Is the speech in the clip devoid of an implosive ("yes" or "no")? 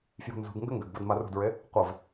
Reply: yes